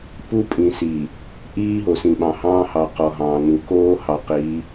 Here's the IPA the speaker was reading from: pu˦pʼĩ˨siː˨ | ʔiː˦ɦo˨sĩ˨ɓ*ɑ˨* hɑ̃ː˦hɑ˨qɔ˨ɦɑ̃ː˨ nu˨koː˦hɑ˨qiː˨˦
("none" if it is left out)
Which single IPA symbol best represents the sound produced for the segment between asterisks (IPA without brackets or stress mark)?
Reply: ɑ̃˨